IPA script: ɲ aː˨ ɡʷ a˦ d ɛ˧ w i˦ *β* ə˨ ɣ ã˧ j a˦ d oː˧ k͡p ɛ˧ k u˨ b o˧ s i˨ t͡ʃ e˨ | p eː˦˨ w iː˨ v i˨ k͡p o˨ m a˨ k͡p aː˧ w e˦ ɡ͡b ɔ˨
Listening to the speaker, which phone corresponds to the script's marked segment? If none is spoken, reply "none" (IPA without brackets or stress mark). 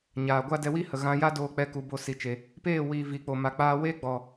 h